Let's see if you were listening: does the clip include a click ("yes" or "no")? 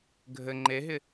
yes